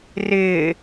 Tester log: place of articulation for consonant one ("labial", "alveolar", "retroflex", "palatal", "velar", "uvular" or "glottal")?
alveolar